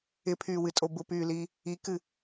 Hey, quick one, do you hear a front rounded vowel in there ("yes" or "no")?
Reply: yes